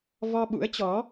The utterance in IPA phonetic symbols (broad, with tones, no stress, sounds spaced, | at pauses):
v ɔ˧ ɓ ṵ˧˥ ə̯ t͡ɕ ɔ˨˦